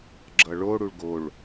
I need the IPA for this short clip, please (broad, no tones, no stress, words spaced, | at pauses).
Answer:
ɡ͡ǁʌɭoɽuɭ ɡoɭ